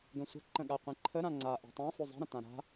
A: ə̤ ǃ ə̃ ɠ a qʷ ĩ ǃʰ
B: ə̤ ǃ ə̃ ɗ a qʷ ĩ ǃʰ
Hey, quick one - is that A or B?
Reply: A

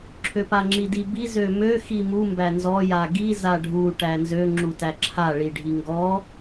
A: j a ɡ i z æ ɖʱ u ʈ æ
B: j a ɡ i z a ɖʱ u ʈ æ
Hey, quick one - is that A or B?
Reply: B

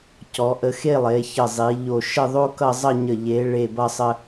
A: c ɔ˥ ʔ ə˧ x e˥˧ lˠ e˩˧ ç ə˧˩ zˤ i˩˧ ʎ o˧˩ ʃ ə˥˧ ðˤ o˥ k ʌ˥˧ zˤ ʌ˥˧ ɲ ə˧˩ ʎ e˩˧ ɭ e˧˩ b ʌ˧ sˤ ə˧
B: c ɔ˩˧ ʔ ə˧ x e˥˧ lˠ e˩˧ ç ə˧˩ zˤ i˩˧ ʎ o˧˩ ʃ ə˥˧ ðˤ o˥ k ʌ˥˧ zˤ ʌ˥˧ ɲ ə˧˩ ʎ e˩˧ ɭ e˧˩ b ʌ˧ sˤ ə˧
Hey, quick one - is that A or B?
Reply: B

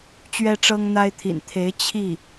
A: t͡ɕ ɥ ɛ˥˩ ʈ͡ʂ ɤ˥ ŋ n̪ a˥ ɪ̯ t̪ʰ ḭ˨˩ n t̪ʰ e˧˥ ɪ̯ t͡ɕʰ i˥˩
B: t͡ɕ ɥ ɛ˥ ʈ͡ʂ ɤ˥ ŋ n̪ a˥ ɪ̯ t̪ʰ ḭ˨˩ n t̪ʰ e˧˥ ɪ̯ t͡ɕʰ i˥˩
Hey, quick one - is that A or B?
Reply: B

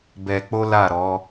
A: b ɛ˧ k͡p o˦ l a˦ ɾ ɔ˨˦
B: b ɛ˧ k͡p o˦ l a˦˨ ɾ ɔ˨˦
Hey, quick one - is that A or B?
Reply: B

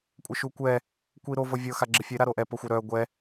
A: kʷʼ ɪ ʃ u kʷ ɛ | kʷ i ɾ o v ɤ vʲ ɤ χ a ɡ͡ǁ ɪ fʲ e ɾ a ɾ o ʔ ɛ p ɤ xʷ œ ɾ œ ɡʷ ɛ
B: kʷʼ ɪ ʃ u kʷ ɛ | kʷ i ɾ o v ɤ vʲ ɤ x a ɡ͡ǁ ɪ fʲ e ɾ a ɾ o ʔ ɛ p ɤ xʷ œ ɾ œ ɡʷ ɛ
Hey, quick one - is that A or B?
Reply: B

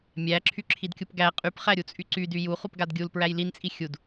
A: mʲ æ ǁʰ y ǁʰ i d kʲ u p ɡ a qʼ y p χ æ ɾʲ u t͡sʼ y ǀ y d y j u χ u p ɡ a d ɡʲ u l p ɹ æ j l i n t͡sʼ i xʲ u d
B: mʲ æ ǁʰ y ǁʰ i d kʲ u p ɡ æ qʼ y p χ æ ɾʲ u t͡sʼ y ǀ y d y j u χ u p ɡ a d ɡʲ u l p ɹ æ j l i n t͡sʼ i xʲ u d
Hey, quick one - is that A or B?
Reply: B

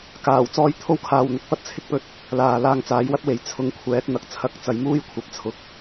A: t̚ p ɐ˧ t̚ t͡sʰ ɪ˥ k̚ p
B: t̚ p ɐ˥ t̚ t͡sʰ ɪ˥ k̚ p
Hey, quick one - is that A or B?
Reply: B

